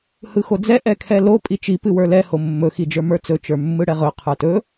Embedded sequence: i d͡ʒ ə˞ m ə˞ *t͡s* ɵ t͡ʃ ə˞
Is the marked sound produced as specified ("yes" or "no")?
yes